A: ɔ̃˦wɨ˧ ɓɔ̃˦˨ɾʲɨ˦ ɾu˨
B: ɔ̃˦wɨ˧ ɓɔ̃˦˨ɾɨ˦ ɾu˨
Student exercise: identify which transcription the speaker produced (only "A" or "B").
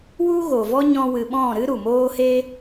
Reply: B